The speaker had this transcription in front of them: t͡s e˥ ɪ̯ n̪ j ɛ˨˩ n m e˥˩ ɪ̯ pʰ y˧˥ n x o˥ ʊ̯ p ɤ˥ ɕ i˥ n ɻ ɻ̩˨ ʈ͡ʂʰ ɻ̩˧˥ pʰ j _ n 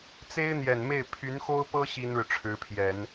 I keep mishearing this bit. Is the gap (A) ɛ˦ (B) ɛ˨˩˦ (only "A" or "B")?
B